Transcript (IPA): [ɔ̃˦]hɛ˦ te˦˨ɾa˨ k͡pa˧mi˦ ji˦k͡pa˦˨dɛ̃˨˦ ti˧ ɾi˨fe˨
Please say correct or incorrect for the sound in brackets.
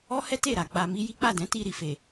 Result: incorrect